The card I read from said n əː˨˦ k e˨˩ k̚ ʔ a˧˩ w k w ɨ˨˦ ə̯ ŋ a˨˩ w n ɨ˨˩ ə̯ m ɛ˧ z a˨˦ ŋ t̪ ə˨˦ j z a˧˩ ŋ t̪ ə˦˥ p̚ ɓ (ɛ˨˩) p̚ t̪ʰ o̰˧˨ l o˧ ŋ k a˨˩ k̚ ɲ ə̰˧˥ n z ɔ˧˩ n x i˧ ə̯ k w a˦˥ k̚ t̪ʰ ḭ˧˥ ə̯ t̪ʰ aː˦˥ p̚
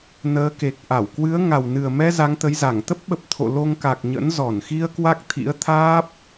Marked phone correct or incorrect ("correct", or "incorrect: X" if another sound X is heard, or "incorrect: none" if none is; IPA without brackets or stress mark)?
incorrect: ə˨˩